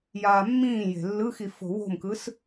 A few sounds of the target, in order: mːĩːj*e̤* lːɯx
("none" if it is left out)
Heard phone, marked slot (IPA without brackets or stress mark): e̤